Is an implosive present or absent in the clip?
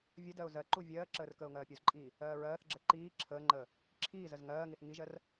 absent